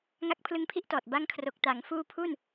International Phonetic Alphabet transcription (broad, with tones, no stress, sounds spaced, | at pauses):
ŋ a˦˥ k̚ pʰ l ɯ˦˥ ŋ pʰ i˥˩ ʔ t ɔː˨˩ t̚ b a˦˥ ŋ kʰ r o˨˩ k̚ t a˩˦ ŋ f uː˦˥ pʰ u˥˩ n